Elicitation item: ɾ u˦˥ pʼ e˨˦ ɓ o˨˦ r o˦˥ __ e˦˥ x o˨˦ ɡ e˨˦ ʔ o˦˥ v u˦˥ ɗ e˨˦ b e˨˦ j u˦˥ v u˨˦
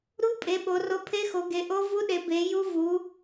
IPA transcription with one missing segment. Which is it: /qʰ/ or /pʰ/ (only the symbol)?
pʰ